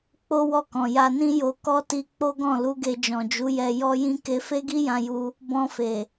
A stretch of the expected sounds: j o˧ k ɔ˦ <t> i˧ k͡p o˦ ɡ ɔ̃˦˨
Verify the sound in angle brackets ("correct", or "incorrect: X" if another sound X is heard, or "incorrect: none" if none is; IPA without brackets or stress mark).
correct